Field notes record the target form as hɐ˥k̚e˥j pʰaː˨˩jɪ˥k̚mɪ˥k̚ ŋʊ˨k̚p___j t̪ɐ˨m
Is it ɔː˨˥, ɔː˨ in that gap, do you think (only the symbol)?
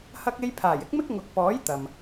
ɔː˨˥